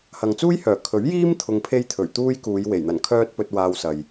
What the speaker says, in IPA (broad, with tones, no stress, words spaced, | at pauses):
hɐ˨ŋt͡suː˥jhœː˨˩ kʰɵ˨˥ɥjiː˥m t̪ʰʊ˧ŋpʰe˥jt̪ʰɵ˨˩ɥ t̪uː˥jkuː˨˧jwe˨˩j n̪ɐ˨˩n kʰœː˥t̚pɵ˧t̚ waː˧wsɐ˨j